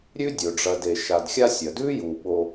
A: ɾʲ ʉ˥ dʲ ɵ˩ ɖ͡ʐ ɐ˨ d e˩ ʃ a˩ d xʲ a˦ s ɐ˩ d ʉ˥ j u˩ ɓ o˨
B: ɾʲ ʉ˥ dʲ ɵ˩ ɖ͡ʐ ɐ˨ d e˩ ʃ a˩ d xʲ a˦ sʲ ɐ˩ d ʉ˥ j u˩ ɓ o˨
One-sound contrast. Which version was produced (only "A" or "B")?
B